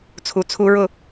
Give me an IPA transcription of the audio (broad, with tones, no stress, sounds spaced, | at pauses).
t͡sʰ u˨ t͡sʰ u˧ ɹ ʊ˦˨